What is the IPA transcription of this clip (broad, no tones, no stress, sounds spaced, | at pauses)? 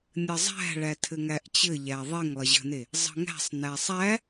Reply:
nʲ ə zˤ æ̤ ɭ æ tʰ ɘ ŋ æ ʔ t͡ɕ ɘ ʎ æ ðˤ e ŋ lˠ ə ʑ ə̤ n e | zˤ ə̤ ŋ æ̤ sˤ n æ sˤ æ